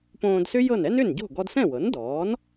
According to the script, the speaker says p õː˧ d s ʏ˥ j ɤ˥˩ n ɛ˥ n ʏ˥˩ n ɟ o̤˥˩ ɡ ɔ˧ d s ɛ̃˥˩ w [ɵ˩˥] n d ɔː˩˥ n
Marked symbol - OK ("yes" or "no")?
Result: no